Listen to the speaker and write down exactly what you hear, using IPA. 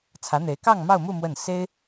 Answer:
t͡sʰ ä˧˥ n̪ e˧˥ ɪ̯ k ɑ˥˧ ŋ m ɑ˥˧ ʊ̯ m u˥˧ m w ə˥˩ n s e˥ ɪ̯

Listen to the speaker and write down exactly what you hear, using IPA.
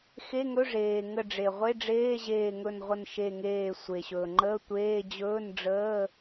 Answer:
x e˧˥˧ ŋ ɵ˧˥˧ ʐ eː˩ ŋ ə˧˩ ɖ͡ʐ e˩ ʁʷ e˧˥˧ ɖ͡ʐ eː˧˥˧ ʑ eː˧˩ ŋ ɵ˧˩ n ʁʷ ə˧˩ n ʃ e˧˩ ŋ eː˧˩ sʷ e˩ ɕ ɵː˩ ŋ͡ǃ əː˧˥˧ tʷ eː˧˥˧ d͡ʑ ɵː˧˥˧ n ɖ͡ʐ əː˧˥˧

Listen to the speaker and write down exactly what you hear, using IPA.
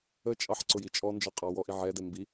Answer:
ə t͡ʃʼ ɑ ħ ǀ ʊ j i t͡ʃʼ ɔ n d͡ʒ ɔ qʼ ɑ w ɔ ʔ i ʕ ɛ d ɛ m b i

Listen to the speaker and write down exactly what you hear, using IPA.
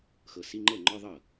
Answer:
x ɤ˨ s i˧˥˧ ŋ͡ǃ ɤ˥˩ ŋ͡ǃ ɔ˧˥˧ ðˤ ɤ˥˩

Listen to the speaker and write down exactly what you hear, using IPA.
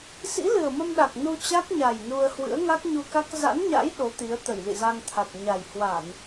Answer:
s ḭ˧˥ l ɨ˨˩ ə̯ m ə˧ m ɗ a˨˩ k̚ n u˧ t͡ɕ a˦˥ k̚ ɲ a˨˩ j n u˧ ə̯ h w ɨ̰˧˥ ə̯ ŋ a˦˥ k̚ ɲ u˧ k a˦˥ k̚ z a̰˧˥ n ɲ a̰˧˥ j ɗ o˨˦ t̪ i˨˦ ə̯ t̪ ə˧˩ j l ḭ˧˨ z a˧ ŋ t̪ʰ a˨˩ t̚ ɲ a˨˩ j h w a˧˩˨ n

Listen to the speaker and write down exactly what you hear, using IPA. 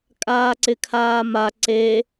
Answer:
kʼ aː ǀ ɪ kʰ aː m a ǀ e

